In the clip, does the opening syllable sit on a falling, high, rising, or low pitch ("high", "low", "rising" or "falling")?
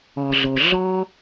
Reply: low